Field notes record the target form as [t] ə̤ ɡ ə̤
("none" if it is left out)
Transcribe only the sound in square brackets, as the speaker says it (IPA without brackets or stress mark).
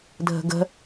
dʱ